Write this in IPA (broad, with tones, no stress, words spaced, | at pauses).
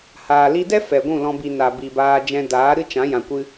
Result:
haː˨ li˧dɛ˦ fɛ˨ ɡʷũ˦˨lɔ̃˧bi˨ na˨bi˨ baː˧d͡ʒɛ̃˧daː˨˦ ɾɨ˦t͡ʃã˨˦ jã˨kʷɨ˧